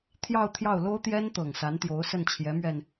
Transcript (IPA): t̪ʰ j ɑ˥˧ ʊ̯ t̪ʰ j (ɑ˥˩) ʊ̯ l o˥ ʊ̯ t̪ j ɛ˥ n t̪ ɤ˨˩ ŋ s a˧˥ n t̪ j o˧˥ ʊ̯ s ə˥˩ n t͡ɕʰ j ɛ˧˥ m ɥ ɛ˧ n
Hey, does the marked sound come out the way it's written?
yes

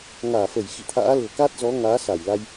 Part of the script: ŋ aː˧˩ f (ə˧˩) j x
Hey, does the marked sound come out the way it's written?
yes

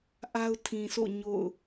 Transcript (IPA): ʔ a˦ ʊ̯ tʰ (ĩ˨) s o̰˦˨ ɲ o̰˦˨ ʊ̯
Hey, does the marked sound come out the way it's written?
yes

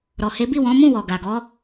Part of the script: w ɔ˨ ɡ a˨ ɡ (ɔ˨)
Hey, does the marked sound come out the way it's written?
no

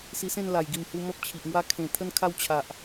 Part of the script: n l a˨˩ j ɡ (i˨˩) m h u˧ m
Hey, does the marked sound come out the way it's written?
yes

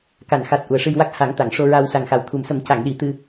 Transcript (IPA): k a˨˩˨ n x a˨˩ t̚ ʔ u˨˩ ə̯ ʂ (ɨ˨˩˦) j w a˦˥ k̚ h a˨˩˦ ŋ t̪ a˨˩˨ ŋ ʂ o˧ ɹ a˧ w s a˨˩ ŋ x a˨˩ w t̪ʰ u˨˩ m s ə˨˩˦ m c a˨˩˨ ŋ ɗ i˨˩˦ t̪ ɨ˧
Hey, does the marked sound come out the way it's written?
no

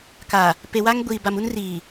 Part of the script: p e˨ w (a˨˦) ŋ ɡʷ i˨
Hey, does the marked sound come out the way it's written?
no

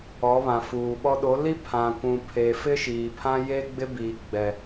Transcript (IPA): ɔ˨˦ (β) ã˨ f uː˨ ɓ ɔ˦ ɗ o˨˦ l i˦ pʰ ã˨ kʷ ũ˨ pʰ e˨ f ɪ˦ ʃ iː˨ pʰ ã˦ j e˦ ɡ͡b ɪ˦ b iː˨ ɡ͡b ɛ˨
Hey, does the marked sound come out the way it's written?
yes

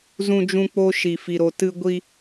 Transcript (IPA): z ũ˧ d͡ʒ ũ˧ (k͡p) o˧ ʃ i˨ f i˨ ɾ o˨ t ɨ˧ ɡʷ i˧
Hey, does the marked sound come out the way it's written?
yes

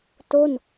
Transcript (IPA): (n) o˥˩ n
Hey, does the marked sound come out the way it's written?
no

